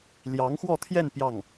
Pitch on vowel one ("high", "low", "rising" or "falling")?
rising